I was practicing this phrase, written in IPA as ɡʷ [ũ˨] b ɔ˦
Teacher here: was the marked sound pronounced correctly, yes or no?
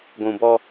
yes